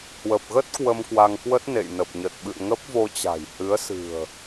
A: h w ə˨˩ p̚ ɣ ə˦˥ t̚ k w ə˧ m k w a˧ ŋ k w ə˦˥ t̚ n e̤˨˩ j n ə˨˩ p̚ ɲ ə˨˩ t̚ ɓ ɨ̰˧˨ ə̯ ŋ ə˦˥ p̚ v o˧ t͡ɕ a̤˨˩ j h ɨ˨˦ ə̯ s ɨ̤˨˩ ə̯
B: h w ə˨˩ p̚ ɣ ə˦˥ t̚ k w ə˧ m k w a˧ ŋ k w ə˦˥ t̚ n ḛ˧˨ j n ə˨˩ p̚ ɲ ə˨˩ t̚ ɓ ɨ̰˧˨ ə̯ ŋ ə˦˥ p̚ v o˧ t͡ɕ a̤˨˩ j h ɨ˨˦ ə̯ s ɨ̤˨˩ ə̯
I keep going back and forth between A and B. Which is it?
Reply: B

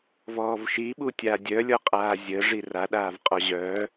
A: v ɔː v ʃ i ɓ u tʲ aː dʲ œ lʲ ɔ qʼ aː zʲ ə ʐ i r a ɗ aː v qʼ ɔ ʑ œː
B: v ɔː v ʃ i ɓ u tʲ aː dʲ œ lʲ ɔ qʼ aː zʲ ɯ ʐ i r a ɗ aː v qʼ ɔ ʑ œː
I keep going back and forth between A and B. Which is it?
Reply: A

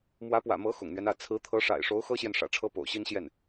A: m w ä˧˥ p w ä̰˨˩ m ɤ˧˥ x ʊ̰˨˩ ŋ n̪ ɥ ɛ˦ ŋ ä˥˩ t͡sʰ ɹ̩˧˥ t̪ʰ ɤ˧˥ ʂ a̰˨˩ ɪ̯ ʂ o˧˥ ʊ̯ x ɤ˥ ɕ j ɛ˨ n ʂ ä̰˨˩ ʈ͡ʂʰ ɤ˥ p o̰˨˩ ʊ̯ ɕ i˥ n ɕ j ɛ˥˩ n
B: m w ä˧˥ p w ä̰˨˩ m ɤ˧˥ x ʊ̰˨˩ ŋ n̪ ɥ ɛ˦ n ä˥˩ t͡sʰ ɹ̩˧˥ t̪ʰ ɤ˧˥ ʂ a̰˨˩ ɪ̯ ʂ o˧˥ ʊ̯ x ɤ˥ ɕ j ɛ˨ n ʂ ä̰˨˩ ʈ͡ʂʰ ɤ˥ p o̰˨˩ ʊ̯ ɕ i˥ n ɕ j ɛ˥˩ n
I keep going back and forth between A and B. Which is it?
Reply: B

